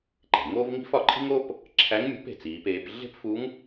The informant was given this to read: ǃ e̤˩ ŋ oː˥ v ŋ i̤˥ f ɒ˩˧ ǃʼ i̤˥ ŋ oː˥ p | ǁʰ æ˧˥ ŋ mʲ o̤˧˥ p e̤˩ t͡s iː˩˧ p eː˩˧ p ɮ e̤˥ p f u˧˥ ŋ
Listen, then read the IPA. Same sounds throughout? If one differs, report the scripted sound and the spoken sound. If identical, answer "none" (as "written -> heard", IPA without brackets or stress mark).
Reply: none